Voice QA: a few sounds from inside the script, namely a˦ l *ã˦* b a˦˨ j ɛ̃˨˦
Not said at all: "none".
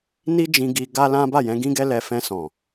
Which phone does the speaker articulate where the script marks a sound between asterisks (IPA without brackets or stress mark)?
ã˦